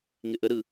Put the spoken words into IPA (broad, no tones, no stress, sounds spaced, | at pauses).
ŋ ɪ ʔ ə ɾ ɯ